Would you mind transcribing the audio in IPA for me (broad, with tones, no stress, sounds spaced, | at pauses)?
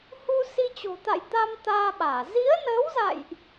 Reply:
h u˧ s i˧ t͡ɕ o̤˨˩ t̪ a̰˧˨ j t̪ a˧ m t̪ aː˧ ɓ aː˧˩ z i˨˦ ə̯ n əː˨˦ w z a̰˧˨ j ʔ